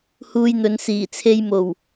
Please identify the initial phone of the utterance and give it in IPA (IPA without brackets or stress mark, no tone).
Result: h